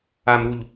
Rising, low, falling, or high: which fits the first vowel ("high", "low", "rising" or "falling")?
low